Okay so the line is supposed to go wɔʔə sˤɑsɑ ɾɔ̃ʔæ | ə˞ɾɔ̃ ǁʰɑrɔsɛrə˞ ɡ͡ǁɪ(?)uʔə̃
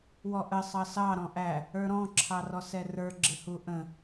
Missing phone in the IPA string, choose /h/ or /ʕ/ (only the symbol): h